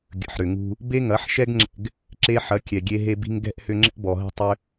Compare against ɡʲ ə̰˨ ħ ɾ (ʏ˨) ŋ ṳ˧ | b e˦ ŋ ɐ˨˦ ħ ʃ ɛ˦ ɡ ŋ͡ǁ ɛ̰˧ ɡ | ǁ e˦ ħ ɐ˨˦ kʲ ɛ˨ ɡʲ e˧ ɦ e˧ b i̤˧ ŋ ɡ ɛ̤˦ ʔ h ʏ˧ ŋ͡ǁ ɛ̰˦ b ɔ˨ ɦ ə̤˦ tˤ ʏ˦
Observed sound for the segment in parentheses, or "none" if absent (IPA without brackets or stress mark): ʏ˨